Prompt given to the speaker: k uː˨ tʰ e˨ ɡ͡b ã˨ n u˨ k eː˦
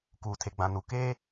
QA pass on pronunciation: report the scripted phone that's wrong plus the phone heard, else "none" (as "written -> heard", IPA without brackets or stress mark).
none